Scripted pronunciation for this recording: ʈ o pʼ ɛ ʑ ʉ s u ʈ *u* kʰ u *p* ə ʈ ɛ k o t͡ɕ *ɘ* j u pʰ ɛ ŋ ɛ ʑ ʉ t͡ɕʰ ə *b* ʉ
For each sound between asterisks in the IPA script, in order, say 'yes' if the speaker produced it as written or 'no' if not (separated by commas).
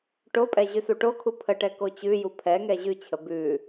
no, no, no, yes